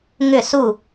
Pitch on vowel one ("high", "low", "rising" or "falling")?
falling